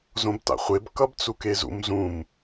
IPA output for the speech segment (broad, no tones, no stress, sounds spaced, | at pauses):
z õ b t a̰ χʷ e b k ʌ b t͡s u k e z ṵ m z ũ m